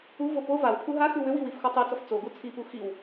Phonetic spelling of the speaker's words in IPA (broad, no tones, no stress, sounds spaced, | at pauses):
u v o p o v a w pʰ u ɦ a x ʉ w ʏ w i w i f x o tˤ i t͡s ɔ f t͡s o ɡ u t͡sʰ i p u x i w